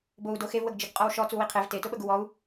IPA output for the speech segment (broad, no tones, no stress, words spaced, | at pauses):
bou̯ doxevwəɡd͡ʒəɡ qʼɔwʃɔ t͡suwiqʰev te tʊɓəɡuwɔu̯